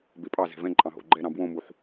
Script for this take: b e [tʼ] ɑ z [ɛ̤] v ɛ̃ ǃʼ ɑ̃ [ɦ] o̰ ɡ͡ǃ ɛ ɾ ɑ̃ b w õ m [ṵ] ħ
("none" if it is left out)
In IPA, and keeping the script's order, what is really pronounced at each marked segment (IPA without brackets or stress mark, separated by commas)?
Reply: pʼ, ɛ̤, ɦ, u